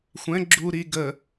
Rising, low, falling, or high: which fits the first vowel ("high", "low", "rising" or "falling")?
rising